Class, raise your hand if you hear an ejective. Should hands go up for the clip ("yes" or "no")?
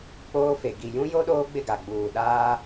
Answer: no